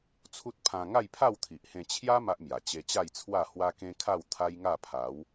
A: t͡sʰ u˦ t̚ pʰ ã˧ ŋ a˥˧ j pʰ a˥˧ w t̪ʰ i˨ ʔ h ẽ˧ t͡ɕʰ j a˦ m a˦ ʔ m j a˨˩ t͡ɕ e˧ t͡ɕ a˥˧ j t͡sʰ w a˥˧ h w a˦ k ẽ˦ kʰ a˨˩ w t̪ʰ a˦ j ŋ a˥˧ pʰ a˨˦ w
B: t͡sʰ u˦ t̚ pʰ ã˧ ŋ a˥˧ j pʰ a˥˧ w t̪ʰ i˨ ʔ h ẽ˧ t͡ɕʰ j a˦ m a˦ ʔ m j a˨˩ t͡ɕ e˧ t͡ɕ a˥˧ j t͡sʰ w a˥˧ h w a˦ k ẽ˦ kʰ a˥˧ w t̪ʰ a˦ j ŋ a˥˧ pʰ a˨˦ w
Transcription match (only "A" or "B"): B